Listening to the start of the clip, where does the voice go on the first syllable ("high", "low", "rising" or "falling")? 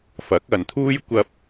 rising